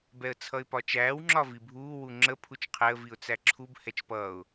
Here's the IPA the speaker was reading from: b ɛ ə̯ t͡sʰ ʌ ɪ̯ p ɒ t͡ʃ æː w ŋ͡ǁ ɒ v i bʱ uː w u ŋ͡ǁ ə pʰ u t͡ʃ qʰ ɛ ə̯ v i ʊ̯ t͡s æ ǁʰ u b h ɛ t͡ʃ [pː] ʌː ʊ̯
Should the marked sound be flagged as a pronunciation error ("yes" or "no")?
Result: yes